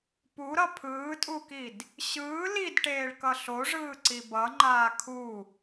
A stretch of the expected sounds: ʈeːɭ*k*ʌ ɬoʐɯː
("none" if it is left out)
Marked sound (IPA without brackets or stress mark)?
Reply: k